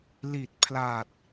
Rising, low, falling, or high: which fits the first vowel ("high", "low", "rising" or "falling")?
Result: low